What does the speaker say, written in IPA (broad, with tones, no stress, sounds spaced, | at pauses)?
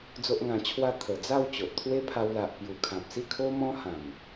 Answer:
d͡z o˦ ʔ ŋ ã˧ t͡ɕʰ w a˥˧ t̪ʰ ə˨˩ d͡z a˥˧ w t͡ɕ o˨ ʔ t̪ʰ w e˦ pʰ a˧ w l a˨ ʔ p j u˨˩ kʰ ã˨ p̚ s i˥˧ kʰ o˦ m ɔ̃˦ h ã˨˩ m